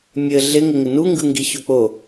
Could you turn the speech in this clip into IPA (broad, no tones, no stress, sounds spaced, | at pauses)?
mʲ ɘ ɮ ɪ ŋ ɪ ŋ ɪ n u ŋ ɡ ɯ ŋ ɡ i ç o k͡p o